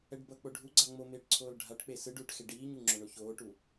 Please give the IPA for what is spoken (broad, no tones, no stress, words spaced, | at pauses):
ɛɖbʌ k͡poɖʱuɡ͡ǀa ŋ͡momeːʈǀʰoːl ɖʱaʈk͡pe sɯɖuːʈxe ɖiːɲu ŋ͡ǁoɳoçoːʈu